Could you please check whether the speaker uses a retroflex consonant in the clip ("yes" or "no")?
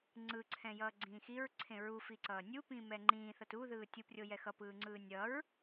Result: no